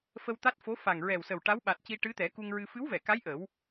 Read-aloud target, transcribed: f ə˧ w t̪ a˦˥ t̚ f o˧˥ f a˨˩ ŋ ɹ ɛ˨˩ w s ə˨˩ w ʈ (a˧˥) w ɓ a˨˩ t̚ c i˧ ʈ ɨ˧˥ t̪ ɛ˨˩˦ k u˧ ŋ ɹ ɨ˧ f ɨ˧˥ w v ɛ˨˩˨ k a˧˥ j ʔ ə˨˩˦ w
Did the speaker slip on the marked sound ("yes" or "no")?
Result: no